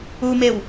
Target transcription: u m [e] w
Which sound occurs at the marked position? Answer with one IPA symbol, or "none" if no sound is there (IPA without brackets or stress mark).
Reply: e